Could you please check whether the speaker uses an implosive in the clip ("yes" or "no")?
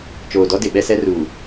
yes